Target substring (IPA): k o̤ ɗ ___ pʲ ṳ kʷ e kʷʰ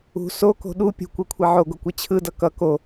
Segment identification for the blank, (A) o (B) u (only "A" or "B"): B